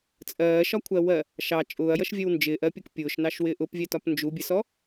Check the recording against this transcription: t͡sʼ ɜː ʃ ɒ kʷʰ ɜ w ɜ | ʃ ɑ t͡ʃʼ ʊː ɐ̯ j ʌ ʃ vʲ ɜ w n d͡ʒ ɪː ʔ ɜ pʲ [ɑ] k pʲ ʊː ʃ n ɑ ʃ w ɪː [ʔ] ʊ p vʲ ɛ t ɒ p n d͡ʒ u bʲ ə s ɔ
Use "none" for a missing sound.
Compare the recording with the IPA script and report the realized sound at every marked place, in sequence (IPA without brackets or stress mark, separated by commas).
ʌ, ʔ